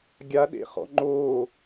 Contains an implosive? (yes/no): yes